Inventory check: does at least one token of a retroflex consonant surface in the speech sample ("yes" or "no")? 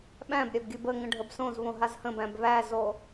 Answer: yes